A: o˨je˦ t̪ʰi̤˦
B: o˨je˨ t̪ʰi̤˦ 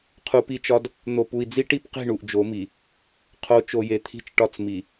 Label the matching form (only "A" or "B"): B